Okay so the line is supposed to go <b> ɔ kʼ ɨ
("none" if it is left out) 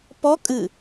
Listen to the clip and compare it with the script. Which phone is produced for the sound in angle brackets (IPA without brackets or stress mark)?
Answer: p